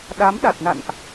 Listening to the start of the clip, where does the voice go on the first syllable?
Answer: rising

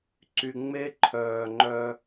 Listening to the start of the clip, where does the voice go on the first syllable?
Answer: low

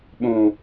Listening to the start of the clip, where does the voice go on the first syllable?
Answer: low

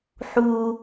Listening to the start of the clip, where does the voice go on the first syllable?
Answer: low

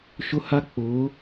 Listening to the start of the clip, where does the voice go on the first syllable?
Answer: high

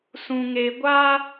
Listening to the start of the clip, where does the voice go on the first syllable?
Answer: low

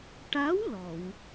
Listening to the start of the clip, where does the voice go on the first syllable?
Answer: rising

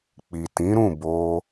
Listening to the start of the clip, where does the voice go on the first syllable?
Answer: low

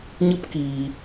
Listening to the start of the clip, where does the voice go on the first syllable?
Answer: high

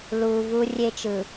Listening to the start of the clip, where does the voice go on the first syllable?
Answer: low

